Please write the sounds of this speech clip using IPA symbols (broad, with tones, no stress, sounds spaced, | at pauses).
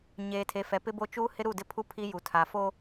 ɲ eː˨ tʰ e˨ f ɛ˨ p ɪ˦ b o˦ t͡ʃ uː˦ h ɪ˦ ɾ u˦˨ d ɪ˦ pʰ u˦ pʰ i˦ j u˨ tʰ a˨ f oː˦